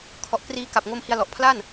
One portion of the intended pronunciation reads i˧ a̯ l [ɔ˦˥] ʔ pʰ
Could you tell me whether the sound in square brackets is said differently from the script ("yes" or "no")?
yes